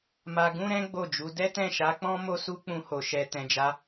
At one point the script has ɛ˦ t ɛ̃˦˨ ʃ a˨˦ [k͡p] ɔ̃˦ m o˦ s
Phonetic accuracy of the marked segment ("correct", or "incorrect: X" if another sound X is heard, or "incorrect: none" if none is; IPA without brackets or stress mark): correct